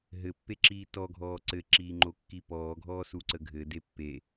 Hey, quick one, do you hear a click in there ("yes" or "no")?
yes